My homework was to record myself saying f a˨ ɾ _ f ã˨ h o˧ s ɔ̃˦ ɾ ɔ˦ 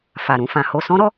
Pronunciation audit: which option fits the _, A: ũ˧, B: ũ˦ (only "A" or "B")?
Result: A